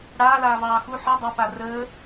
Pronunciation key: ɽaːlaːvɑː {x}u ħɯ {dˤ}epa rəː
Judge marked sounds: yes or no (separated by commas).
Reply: yes, yes